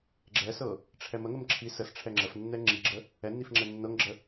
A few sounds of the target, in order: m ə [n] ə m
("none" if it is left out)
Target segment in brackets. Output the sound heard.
ŋ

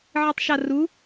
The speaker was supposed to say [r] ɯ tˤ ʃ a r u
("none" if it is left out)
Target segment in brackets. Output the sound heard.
ʕ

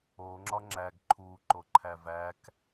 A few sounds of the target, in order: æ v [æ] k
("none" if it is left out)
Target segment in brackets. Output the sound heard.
æ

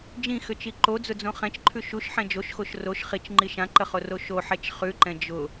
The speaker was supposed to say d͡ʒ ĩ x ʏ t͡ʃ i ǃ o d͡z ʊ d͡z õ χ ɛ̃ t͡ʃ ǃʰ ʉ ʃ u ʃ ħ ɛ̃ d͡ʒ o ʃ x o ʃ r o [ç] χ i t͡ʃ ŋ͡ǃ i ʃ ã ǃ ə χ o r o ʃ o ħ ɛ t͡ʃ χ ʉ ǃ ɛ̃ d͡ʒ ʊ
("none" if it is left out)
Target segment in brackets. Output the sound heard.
ʃ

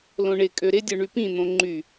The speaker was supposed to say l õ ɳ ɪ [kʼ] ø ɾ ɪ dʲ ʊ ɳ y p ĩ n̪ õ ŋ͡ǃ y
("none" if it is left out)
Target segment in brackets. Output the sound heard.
kʼ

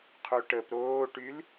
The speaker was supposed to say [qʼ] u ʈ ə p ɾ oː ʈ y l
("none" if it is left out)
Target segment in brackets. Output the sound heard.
qʰ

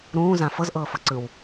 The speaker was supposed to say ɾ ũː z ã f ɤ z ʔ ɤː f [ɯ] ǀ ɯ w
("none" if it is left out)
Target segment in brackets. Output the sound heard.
ɤ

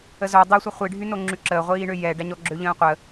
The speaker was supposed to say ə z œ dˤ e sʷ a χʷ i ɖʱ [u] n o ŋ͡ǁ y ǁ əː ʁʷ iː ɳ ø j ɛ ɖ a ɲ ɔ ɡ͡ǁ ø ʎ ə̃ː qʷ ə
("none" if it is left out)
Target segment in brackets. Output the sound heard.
y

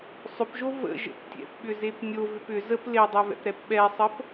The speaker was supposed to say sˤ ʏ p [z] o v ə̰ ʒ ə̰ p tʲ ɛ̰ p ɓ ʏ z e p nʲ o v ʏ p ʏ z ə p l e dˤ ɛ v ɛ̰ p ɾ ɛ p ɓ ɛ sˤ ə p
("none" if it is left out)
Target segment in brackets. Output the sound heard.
ʒ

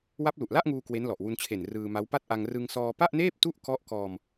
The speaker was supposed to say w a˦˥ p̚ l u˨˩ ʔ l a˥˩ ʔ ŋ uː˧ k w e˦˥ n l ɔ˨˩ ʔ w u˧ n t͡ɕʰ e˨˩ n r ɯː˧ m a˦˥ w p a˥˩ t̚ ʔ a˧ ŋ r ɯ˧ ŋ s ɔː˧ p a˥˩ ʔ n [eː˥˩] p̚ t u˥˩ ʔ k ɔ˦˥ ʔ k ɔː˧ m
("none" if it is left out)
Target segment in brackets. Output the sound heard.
eː˥˩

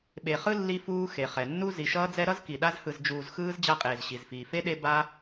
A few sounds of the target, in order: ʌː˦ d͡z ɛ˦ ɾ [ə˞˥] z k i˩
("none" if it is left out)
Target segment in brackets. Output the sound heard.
ʌ˥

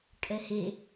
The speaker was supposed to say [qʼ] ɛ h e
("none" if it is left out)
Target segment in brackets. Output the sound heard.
kʼ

